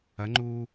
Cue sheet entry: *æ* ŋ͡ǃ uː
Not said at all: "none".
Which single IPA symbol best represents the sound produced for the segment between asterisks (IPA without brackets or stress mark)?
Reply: ɐ